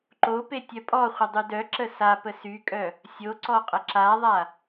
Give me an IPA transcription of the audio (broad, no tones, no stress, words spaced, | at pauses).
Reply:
ǃope tʲœpʼɔχʷə dˤydœǁə sa pəsykʼœ | sʲo ǀɔqʼəǁaðˤa